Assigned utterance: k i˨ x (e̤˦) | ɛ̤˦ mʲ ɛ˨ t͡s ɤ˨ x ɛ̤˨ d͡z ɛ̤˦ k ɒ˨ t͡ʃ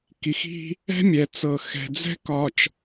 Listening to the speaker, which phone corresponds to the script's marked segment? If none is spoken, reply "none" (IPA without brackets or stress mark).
i̤˦